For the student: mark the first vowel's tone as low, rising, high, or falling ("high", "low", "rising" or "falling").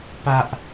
high